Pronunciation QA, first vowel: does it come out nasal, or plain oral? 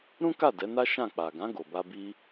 nasal